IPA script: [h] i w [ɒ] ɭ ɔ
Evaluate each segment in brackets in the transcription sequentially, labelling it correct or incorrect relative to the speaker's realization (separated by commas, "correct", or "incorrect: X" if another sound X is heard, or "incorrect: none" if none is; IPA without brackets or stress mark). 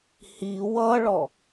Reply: correct, incorrect: ʌ